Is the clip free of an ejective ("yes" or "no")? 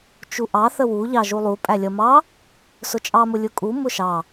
no